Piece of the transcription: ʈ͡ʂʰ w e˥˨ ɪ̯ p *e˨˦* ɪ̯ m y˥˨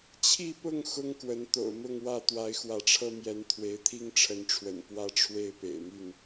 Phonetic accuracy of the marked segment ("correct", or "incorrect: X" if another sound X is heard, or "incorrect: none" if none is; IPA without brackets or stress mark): incorrect: ḛ˨˩